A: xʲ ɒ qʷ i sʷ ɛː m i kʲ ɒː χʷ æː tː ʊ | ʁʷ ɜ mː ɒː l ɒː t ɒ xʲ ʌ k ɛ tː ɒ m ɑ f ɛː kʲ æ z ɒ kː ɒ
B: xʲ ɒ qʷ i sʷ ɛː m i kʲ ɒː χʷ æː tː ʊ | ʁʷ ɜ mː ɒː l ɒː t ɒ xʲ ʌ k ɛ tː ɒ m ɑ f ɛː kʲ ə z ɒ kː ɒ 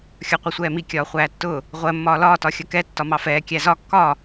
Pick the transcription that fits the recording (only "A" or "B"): A